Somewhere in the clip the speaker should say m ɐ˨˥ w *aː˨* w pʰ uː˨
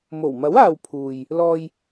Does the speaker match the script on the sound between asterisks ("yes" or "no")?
yes